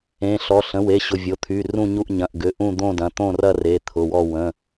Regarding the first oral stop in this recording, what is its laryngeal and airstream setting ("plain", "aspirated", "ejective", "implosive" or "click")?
aspirated